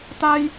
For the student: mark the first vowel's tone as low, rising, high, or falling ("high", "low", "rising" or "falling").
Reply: high